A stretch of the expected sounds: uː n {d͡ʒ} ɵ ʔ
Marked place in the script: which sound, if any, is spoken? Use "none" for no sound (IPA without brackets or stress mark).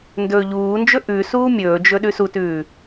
d͡ʒ